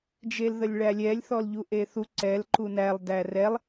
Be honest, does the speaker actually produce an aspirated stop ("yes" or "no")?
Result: no